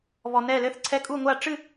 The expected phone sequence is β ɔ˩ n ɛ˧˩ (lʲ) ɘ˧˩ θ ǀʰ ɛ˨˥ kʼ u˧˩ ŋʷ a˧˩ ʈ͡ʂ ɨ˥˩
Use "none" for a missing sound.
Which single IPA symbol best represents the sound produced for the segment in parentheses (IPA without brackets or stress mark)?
l